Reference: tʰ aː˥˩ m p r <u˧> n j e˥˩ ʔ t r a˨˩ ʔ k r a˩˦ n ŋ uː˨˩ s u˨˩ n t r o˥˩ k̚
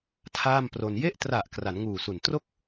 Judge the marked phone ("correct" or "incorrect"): incorrect